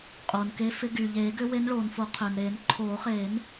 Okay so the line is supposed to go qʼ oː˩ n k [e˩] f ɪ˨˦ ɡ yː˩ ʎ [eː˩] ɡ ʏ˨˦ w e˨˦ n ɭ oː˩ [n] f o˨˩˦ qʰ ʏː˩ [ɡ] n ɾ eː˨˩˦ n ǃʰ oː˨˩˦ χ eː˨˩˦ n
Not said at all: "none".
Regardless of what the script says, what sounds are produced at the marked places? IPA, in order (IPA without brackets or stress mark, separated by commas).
e˨˦, eː˨˩˦, n, none